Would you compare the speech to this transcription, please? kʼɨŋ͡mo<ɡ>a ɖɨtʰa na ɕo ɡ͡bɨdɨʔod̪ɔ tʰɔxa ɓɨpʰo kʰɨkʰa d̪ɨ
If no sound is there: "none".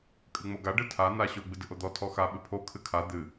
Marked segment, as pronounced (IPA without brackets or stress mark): ɡ